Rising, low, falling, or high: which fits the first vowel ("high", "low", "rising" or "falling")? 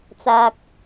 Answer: high